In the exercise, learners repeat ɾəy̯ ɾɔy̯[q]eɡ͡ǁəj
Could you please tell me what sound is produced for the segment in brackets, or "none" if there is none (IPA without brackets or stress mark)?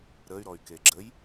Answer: k